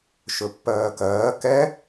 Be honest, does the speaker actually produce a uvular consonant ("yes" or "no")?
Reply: no